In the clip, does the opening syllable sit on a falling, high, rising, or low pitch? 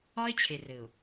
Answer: high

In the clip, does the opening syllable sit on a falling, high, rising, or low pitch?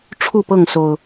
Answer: falling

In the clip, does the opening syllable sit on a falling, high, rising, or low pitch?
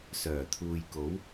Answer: low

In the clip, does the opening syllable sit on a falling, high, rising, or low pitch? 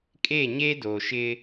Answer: falling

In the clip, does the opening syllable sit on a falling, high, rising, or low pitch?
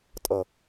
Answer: falling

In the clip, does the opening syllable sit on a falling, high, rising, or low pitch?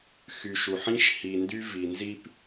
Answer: low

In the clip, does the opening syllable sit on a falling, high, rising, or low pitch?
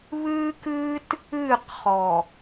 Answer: high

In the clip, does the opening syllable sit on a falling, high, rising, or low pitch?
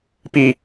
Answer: falling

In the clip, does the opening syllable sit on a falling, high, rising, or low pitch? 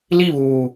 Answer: falling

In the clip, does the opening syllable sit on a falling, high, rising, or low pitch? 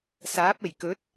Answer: rising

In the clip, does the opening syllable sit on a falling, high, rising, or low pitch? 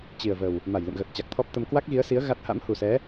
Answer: low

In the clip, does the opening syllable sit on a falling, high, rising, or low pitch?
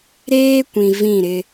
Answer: high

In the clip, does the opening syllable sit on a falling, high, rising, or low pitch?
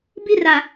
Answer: high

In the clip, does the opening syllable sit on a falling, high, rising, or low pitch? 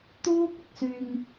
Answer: high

